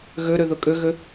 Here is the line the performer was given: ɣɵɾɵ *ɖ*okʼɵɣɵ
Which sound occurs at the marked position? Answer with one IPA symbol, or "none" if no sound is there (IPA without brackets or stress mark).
ð